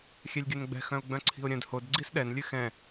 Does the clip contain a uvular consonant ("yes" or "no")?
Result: no